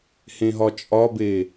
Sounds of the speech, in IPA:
h ẽ ɦ ɒ t͡ʃʼ ɒ b e

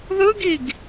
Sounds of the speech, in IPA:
ð ɯ ɡ i ɡ

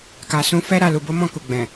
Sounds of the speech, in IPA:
k a˨ s ũ˨˦ f ɛ˦ ɾ a˦˨ l u˨ b o˨˦ m ɔ̃˦˨ k u˨ ɡ͡b ɛ̃˨

